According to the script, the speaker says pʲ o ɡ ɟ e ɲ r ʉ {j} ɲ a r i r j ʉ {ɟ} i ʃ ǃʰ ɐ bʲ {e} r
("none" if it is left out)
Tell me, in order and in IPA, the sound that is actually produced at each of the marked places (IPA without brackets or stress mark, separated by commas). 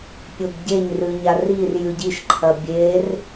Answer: none, ɟ, e